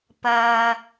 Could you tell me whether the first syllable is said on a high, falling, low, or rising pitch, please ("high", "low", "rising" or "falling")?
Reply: low